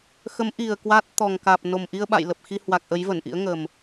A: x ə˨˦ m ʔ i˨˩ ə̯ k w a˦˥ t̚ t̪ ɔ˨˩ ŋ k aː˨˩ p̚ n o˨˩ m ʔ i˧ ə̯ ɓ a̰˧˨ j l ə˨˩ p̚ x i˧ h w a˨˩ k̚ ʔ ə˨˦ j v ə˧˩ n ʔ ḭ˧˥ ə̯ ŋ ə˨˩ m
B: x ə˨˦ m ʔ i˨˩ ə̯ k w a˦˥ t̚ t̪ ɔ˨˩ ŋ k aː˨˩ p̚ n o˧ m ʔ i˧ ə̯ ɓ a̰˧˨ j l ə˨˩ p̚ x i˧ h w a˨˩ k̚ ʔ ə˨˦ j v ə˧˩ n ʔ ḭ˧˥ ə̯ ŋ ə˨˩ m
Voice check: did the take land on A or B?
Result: A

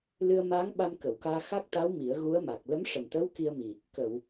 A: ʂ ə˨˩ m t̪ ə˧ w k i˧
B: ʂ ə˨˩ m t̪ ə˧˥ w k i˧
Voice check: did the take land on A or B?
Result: B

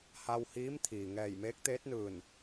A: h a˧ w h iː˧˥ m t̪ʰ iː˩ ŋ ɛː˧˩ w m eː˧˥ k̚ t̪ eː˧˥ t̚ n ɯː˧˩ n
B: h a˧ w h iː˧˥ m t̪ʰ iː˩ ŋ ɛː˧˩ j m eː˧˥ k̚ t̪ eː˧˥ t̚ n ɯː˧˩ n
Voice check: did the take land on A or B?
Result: B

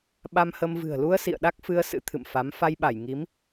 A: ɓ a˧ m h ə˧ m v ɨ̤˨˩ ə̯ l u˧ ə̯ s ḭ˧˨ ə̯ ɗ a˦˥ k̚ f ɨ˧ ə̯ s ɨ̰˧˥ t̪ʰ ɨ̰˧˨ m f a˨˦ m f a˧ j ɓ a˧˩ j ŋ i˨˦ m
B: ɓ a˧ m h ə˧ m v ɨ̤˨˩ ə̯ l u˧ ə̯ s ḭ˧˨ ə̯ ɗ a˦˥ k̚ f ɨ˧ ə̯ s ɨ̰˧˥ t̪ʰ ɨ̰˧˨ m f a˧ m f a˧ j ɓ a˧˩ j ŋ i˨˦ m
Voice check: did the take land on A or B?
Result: A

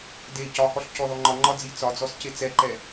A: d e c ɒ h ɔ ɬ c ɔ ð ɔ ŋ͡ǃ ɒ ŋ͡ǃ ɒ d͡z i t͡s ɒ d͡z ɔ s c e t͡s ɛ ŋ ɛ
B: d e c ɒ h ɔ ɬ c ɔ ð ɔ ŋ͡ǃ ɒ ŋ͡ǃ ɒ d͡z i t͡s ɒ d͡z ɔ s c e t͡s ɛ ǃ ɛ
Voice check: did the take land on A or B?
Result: B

